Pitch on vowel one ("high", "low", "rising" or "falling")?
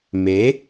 rising